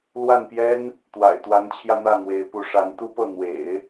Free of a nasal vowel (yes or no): yes